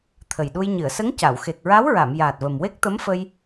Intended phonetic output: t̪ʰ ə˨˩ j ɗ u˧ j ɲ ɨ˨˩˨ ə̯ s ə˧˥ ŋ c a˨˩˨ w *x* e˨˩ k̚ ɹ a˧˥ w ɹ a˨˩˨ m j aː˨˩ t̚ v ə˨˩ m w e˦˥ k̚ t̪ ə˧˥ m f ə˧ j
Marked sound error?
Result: no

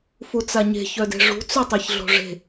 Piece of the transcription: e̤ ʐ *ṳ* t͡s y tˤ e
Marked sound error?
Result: no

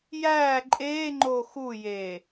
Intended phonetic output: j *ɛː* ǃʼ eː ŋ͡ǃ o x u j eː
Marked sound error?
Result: yes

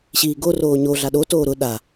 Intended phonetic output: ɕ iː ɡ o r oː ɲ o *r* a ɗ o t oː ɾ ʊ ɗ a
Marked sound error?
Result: yes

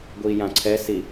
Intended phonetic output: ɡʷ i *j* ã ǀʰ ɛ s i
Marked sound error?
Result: no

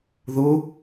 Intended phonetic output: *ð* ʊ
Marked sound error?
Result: no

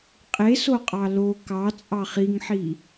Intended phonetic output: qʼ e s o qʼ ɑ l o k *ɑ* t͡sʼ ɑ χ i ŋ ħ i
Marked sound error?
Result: no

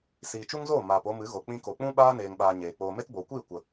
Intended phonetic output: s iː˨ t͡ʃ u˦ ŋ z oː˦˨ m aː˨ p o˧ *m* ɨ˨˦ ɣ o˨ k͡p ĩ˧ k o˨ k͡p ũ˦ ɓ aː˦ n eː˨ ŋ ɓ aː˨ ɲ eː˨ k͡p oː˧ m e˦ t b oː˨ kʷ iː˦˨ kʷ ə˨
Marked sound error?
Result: no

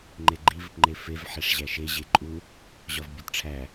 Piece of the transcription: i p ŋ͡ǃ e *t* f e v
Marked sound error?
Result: yes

